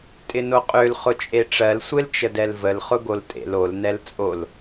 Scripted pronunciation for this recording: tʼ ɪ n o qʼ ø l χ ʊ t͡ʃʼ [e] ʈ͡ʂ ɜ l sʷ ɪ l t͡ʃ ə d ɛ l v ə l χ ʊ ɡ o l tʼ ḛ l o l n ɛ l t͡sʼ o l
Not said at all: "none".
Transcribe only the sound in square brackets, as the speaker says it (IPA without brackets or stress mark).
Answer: e